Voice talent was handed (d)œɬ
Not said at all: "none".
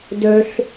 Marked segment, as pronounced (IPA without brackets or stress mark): d